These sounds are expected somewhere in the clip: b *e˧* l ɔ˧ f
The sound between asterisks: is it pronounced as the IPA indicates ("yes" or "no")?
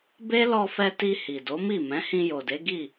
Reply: no